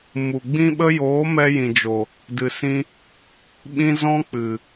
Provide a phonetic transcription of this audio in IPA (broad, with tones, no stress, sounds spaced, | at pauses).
m u˨ ɡ͡b ĩ˦ ɓ ə˦ j oː˨˦ m ɛ˧ j ĩ˨ d͡ʒ o˨ | d ɨ˨ s ĩ˧ | ɓ ĩ˦ z ɔ̃˦ k͡p ɨ˨